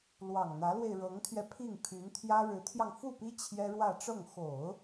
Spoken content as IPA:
lwɑ˨˩ŋn̪ä˧˥lwe˧ɪ̯ ɻɤ˧˥ŋt̪ʰɥɛ˧pʰi˥˩ŋ pʰy˧˥nt̪ʰjä˥ ɻɻ̩˧˥t̪ʰjɑ˧ŋfu˥˩pi˥ t͡ɕʰjɛ˥ɻwä˥˧ʈ͡ʂɤ˥˩ŋ xo˨˩˦ʊ̯

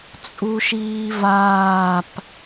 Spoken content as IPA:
t͡sʼuʃiːvaːp

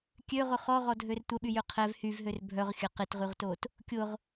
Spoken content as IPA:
kʲøʁʊ χɔʁɔdʱør tʷəɓyjø qʰɛv hyvɦør bʱœʁxʲɐ qɪtʁyʁtot | kʲʊʁ

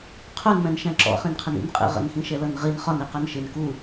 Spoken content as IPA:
qʰunmɛ̃nʃæ̃ ǁɔ̰χĩnqʰɪn ḭnqʼḭ ʁə̰nxĩʃɛ lʌnʁin χɒni qɜnʃɪn ku

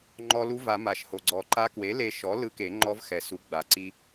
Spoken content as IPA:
ŋ͡ǃɔ˧ lu˦˥va˨˩˦ma˩ʃ ho˩ɡ͡ǀɔ˨˩˦ǃa˦˥ kwe˩˥le˧ ʃɔ˩˥ lɯ˦˥ke˨˩˦ŋ͡ǃɔ˦˥v xɛ˩su˩˥ ɡ͡ba˩ǀi˧

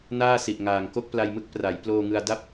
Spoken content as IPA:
naː˥˩si˨˩ʔŋaː˨˩ŋ ko˥˩k̚pla˧jmɯ˦˥k̚ pra˩˦j ploː˧ŋɯ˧a̯da˥˩p̚

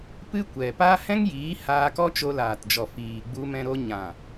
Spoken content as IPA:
pɨ˦kʷɛ˨ pa˦ hɛ̃˦ŋjiː˨˦ haː˧kɔ˦ t͡ʃo˧laː˨td͡ʒɔ˨ fiː˨ ɡ͡bu˧mɛ̃˧ɾo˧ ɲã˨

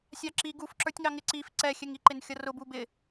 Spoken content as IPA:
sʲɑǁi ɡufǁə˞tʲŋɑŋɪ ǀif ǀɛxʲɛŋiǃɪn xʲʌrʊ bubɪ

